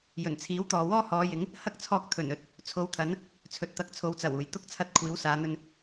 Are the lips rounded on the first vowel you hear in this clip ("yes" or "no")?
yes